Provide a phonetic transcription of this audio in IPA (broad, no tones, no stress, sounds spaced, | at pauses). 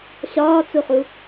ɕ ɒː t͡s u χ u